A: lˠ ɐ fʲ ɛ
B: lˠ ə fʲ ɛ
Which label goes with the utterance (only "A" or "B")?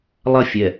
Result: A